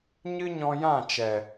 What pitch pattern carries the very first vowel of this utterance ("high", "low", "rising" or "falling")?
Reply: high